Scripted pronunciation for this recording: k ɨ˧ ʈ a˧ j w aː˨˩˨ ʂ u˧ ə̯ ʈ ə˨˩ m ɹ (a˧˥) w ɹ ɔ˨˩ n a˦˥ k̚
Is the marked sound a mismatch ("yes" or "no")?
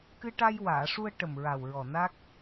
yes